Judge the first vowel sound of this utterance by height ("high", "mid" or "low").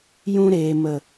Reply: high